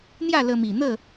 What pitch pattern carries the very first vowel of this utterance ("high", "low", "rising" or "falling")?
falling